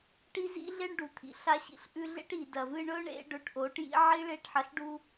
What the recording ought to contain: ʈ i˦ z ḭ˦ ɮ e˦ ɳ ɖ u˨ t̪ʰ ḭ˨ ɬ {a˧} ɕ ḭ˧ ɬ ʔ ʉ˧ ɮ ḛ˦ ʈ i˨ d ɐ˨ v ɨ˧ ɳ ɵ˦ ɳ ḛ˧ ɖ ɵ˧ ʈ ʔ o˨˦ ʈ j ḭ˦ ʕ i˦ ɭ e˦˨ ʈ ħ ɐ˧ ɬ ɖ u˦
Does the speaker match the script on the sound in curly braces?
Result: yes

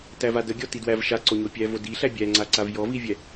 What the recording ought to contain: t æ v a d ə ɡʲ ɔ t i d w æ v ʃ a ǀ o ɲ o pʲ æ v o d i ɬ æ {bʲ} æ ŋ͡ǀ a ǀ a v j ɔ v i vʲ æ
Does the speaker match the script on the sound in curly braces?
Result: yes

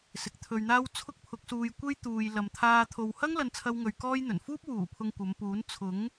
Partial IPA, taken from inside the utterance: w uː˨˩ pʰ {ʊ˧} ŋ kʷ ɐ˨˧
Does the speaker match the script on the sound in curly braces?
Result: yes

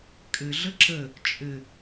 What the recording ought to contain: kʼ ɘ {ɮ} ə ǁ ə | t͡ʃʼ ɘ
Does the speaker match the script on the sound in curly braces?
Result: yes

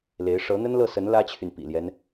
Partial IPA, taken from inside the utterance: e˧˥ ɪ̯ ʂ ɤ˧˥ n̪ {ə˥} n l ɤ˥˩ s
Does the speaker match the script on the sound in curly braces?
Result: yes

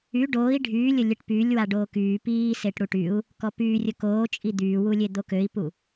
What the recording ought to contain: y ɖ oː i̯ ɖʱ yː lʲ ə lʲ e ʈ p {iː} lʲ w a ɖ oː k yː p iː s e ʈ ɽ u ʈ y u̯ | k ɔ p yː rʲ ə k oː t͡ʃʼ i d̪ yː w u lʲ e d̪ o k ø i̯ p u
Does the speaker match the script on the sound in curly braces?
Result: no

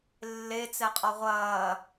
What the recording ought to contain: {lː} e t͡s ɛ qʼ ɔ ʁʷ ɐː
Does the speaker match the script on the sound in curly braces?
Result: yes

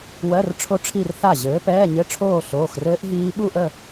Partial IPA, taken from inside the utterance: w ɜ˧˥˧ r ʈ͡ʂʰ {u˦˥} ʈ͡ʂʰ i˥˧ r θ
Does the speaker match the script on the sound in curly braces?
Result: no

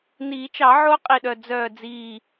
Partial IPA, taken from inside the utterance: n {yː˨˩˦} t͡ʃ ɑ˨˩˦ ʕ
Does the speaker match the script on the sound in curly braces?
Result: no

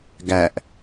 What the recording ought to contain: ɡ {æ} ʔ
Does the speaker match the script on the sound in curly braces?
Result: yes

